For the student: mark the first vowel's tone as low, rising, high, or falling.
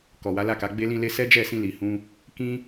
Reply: low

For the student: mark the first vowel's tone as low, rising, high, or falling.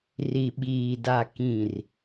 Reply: low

